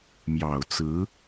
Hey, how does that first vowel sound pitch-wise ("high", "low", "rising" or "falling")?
low